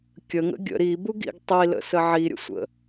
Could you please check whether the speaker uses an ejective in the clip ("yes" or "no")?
no